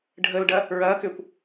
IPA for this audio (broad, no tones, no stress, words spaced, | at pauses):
ɖʱəlɖɐ | ɹɐːkʏːkʷ